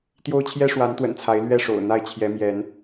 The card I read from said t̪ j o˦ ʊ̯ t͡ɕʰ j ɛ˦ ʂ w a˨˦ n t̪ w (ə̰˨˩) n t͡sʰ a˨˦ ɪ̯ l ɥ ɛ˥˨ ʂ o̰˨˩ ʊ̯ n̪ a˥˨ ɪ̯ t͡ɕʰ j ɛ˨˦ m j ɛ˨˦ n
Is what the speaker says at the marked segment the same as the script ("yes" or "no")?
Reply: yes